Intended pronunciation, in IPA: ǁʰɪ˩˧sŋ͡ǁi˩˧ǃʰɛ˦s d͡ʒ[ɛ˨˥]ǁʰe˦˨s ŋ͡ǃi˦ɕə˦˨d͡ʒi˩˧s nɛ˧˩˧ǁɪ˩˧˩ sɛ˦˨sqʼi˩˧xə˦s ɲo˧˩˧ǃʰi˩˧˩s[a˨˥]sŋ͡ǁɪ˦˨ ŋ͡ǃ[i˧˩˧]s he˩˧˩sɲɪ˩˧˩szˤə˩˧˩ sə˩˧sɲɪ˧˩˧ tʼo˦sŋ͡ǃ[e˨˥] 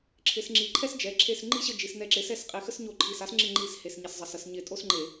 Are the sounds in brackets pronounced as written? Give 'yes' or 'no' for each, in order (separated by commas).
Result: no, yes, yes, no